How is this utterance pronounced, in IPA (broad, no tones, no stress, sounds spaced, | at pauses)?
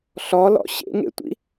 ɬ ɔ l ɔ̰ ɕ ḛ ŋ ḛ tʷ ḭ